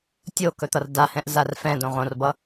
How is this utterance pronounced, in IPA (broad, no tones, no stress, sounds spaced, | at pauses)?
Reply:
tʲ o k ɵ t̪ ʌ r d a h ɛ̃ ʔ z a r f ɛ̃ d õ ʁ õ r b ʌ